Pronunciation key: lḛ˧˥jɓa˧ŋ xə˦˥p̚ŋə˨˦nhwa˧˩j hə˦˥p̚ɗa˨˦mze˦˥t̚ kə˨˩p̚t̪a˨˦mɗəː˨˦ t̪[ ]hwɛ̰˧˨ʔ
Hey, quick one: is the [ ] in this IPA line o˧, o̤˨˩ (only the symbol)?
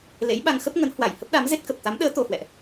o˧